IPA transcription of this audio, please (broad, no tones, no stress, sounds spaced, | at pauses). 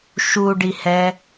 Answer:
ʃ u ɖ i h ɛ